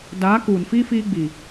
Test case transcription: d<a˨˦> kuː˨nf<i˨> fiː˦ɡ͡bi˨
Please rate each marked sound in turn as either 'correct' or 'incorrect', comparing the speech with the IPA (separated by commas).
correct, incorrect